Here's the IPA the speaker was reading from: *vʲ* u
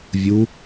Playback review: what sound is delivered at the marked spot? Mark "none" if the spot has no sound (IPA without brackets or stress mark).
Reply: vʲ